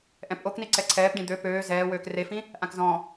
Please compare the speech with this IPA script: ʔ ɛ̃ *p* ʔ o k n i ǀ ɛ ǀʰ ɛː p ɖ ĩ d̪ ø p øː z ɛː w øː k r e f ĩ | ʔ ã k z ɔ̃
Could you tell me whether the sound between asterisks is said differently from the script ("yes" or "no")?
no